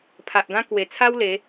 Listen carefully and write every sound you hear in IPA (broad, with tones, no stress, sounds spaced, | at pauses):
pʰ a˨ ʔ ɡ ã˦ k w e˨˩ t͡sʰ a˦ w l e˨˦